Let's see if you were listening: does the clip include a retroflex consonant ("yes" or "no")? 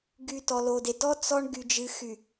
yes